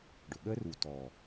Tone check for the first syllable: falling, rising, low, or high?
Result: low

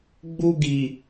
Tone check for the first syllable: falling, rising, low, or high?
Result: high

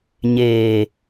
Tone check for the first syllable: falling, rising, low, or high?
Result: low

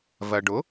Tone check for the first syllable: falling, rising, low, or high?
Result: low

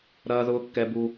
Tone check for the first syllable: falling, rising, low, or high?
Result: low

